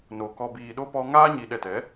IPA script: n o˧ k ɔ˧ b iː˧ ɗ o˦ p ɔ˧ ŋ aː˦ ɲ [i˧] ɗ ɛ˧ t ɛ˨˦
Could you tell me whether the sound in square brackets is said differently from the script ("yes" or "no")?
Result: no